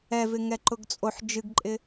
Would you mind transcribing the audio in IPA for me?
ɛvɪ ŋɛǃʊɡt͡sʼoħ d͡ʒɨɡǃʼɪ

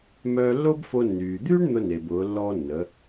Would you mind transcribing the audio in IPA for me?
mœː˧lːo˥bfo˧ nːyː˩d̪yː˥ɳ n̪ʊ˧ne˩b ʊː˩˧lːɔ˧nːə˩˧

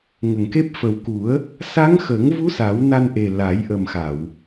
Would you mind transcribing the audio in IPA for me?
ŋə˨˩˨ŋke˦˥p̚ fə˨˩wku˨˩˦ə̯ | sa˧˥ŋxə˨˩˦ŋvu˧˥ sa˨˩˦wna˧nʔe˨˩ la˨˩˦j ʔə˨˩mxa˨˩˨w

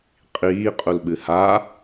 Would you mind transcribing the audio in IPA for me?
qʼiːqʼulɓɨ ha

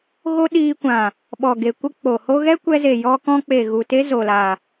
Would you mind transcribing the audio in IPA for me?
ɣo˦ ɗiː˧kʷã˨ | ɓɔ˨ɡe˨ kʷə˦k͡po˨ho˦ ɣɛ˦kʷɛ˧ze˨ jɔ˧kɔ̃˧k͡pe˨ ɣu˨te˦ zo˨la˨

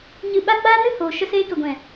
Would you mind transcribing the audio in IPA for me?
ɲɨ˧ɓa˦ ɡ͡baː˦nɨ˦hoː˨ ʃə˧seː˧kə˨ɡʷɛ̃˨

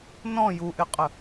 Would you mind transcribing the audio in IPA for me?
nɔ̃ juʔɪqʼə

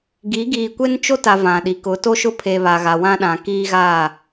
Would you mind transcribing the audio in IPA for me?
ɡi˨˦ ɡiː˨kʷe˦nt͡ʃo˦ta˨ vã˨ɗi˨ kʊ˨˦ to˦ʃʊ˦pʰe˨ βa˨ɣa˨wã˦ɗã˨ kiː˦ɣa˦˨

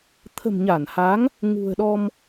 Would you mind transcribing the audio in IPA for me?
t̪ʰə̤˨˩mɲa˧˩nha˨˦ŋ | ŋṳ˨˩ə̯ɗɔ˧m

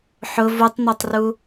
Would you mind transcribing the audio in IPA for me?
ħʊ vutˤnɛtˤru

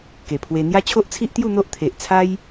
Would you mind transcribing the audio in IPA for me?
ke˨˩pʰwe˧ n̪ja˦t͡ɕʰo˦ʔt͡sʰi˦ʔt̪ju˥˧ n̪o˦ʔt̪ʰe˨ʔt͡sʰa˦j

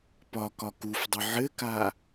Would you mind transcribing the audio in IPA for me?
pɒ kɒkufdˤɘ ʕɘka

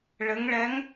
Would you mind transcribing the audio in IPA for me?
ɭɘ˩˧ŋɭɛ˩˥ŋ

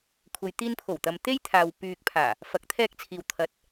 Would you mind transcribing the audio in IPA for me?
kʷʰɐ˨jt̪iː˧npʰo˨˩wt̪ɐ˨m t̪e˥jt̪ʰaː˨w pyː˨k̚pʰaː˨˩ | fɐ˨˥k̚t̪ʰɛː˧k̚t͡sʰiː˨w t̪ʰɐ˨˥t̚

